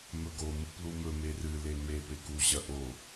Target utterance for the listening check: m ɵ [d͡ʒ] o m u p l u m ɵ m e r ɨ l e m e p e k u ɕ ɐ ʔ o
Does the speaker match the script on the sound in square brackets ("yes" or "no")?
no